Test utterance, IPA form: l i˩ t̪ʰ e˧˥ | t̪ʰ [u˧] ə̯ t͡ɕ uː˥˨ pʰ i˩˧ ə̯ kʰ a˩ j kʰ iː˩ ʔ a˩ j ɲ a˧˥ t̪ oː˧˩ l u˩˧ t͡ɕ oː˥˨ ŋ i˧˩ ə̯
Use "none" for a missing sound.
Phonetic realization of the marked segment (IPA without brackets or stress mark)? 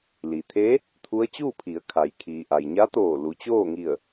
u˧˥